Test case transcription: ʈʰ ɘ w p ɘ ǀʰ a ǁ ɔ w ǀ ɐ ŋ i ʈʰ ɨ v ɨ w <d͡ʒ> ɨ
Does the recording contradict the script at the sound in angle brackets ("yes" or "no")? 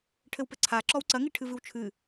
yes